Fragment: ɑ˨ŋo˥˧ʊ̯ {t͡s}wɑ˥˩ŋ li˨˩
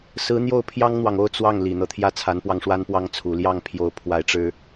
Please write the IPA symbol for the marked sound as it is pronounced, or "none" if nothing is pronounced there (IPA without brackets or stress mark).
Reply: t͡s